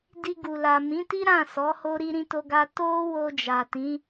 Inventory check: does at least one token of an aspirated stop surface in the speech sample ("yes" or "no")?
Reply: no